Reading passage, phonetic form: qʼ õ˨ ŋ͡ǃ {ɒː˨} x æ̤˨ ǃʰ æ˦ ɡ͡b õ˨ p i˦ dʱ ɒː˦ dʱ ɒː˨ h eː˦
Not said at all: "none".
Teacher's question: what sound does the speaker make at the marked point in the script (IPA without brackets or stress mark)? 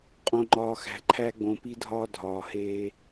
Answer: ɒː˨